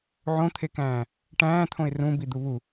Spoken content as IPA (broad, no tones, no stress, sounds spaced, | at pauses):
ʕ õ t̪ʰ e k æ̃ː | ʈ æ̃ː t̪ʰ õ ɪ̯ r ũ b i d̪ u β u